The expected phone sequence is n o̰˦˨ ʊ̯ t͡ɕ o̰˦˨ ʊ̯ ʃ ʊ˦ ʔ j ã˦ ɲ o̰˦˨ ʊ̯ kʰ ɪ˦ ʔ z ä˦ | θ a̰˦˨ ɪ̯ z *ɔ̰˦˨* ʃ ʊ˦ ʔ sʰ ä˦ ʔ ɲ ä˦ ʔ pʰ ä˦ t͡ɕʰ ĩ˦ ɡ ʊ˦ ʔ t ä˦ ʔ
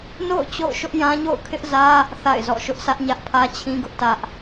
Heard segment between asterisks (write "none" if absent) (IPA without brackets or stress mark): ɔ̰˦˨